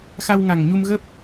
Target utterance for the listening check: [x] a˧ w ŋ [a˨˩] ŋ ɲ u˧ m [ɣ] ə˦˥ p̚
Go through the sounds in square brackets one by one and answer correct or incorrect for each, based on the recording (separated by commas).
correct, correct, correct